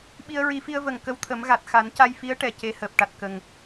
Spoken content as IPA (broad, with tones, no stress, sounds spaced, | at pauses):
ɓ i˧ ə̯ ɹ i˨˩˦ f i˧ ə̯ v ə˨˩ ŋ k ə˧˥ w t̪ʰ ə˨˩˦ m ɣ a˨˩ t̚ x a˨˩˦ n c a˧ j f i˧˥ ə̯ ʈ ɛ˨˩ c e˧˥ h əː˨˩ p̚ ʈ a˨˩ t̚ k ə˨˩ ŋ